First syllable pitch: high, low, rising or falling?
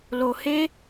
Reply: low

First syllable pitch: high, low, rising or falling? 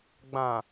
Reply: low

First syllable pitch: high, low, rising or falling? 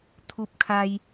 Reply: high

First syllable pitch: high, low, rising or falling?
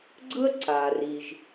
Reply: high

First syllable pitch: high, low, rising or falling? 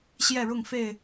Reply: falling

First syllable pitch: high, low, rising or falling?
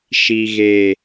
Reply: low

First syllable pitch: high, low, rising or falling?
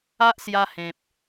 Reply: high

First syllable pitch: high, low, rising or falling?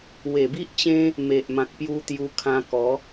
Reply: low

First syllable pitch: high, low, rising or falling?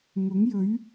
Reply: rising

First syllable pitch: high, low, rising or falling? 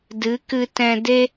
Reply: rising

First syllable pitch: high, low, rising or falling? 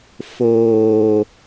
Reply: low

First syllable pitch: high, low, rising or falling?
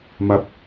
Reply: low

